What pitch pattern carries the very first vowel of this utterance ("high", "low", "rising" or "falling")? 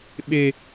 high